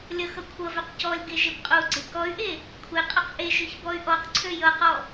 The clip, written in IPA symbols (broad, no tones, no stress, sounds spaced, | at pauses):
lʲ ʌ x ʌ kʷʰ ʌ v ø q c ɔ lʲ ɡ e ʒ e p qʼ o u̯ ɡ͡ǀ e k ɔ y̯ ʔ e | kʷʰ e qʼ ʌ q ʔ e ʒ ø ç b ɔ y̯ ʔ ɔ q ǀʰ ø j ʌ q ɔ